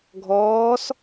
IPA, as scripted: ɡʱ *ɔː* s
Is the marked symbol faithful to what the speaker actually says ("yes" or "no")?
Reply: yes